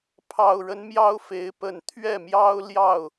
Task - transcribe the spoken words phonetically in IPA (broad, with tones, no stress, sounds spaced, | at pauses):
pʰ ɑ˨˩ ʊ̯ ɻ ə˦ n m j ɑ˦ ʊ̯ f e˨˦ ɪ̯ p ə˨˩ n t̪ʰ ɥ ɛ˥˨ m j ɑ˦ ʊ̯ l j ɑ˥˨ ʊ̯